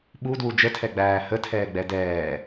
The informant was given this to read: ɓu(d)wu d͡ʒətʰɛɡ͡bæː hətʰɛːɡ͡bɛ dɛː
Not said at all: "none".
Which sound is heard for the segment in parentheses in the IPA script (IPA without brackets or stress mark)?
d